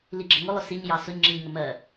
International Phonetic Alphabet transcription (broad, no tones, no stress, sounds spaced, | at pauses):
l i ɡ͡ǁ ʌ ŋ ʊ lˠ ʊ s i ɲ j ɑ s ʊ ɲ ŋ͡ǁ i ɲ ŋ ə m ɜ